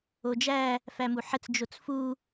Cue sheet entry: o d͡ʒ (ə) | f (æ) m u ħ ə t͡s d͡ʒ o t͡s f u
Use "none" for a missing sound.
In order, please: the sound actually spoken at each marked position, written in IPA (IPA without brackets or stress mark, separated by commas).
æ, æ